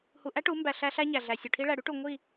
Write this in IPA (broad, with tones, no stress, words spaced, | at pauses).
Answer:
hu˧ ʔæ˦ʈu˨˦ mbæ˧ɬæ˦ɬæ˦ ɲæ˨ɮæ˨sʲu˨ʈʰi˦ ɭæ˨ɽy˦ʈu˨ ŋʷi˦˨